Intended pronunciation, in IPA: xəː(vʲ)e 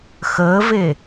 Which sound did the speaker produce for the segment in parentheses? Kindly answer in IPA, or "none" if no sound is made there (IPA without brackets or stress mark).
v